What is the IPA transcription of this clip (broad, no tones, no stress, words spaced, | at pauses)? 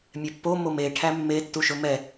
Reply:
mʲɛpːo mome ʈʰæmːe tːuʃɵmɛ